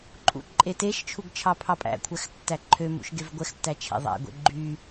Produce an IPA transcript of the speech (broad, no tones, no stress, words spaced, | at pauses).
ǃʼṵǃʼeteʃt͡ʃʰuɡ t͡ʃʰɑpʰɑpʼæ̰kʷʰæx tːæǃʰømṵʃ ɡevɡʷɛxtːæ t͡ʃʰḛðˤæ̰ɡʷḛ ɡ͡ǃy